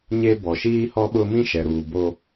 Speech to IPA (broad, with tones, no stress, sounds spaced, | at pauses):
ɲ e˦ b ɔ˨ ʃ iː˦ h ɔ˦ ɓ ʊ˦ m ĩ˦ ʃ ɛ˨ ɾ uː˨ b o˦